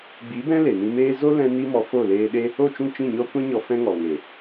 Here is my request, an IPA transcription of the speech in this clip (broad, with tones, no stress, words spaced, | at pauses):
ɡ͡bi˨˦ bɛ̃˦ le˨nĩ˧meː˦ zo˦ lɛ̃˦ni˦mɔ˧ fo˦˨leː˧ɗe˦ | o˦˨t͡ʃũ˦˨t͡ʃĩ˦˨ɲɔ˦ kʷɛ̃˦ɲɔ˧ fɛ̃˧ŋɔ˨ŋe˨